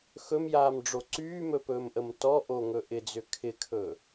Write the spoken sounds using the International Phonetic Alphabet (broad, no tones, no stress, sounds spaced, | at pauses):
x ɵ m j aː m ɖ͡ʐ o ǀ yː m ɵ p ɵː m ʔ ə m t ɔ ʔ o ŋ ɵ ʔ ɪ d͡z ʏ kʰ ɪ kʰ ɵ